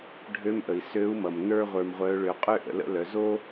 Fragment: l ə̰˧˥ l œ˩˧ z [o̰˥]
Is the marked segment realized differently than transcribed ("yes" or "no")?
yes